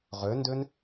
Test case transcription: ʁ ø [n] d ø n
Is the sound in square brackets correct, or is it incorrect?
correct